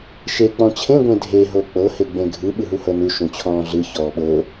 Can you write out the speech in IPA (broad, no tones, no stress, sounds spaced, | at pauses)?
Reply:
ʃ e k͡p ɔ̃ t͡ɕʰ ẽ ɡʷ ẽ dʱ e ɦ o k͡p ɤ h e ɡ͡b ẽ ɡʱ ɯ ɓ ɯ ɦ u h ɤ n u ʃ ũ t͡ɕʰ ɔ̃ː ɮ ɯ ç ɔː ɓ ɤ